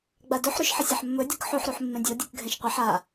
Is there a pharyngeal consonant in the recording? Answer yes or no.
yes